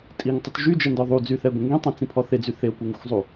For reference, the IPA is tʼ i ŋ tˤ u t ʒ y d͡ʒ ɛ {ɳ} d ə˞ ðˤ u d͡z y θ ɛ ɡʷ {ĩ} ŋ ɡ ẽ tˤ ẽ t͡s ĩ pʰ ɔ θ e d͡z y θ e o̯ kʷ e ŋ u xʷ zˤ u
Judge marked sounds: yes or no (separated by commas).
no, no